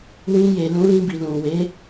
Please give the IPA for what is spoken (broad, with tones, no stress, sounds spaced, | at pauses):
w ĩ˧ j e˨ l ũ˨˦ l ĩ˧ b i˨ l ũ˨ w e˨˦